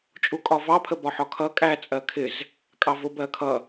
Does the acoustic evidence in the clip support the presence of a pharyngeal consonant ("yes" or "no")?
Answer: yes